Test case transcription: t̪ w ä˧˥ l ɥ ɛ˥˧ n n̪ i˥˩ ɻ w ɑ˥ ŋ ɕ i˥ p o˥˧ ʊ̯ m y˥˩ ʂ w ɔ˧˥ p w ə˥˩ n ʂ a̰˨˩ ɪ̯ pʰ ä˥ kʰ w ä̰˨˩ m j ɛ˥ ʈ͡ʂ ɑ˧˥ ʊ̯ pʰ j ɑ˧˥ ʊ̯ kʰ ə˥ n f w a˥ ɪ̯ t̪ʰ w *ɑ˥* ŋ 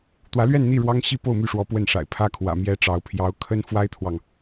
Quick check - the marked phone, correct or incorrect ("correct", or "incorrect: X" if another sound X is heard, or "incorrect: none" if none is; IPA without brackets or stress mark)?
incorrect: ɑ˨